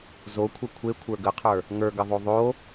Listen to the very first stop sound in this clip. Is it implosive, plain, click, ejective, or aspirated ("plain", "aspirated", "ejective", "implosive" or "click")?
aspirated